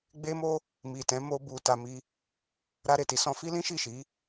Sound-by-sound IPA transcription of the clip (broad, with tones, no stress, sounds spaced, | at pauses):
ɡ͡b e˦ m o˦ | m i˨ t ɛ̃˨˦ m o˦ b u˧ t a˧ m i˦ | ɾ a˧ ɾ e˨ t i˨˦ s ɔ̃˧ f i˦ l ĩ˦ ʃ i˦˨ ʃ i˨˦